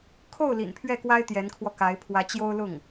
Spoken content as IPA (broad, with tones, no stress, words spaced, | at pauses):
kʰo˥˩ʊ̯ lḭ˨˩npʰɥɛ˥˩kwa˥ɪ̯ t̪jɛ˧˥nkʰwɔ˧ka˧˥ɪ̯ pʰwä˧˥t͡ɕjo˥ʊ̯ lʊ˥˩ŋ